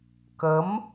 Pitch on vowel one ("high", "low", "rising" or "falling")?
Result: rising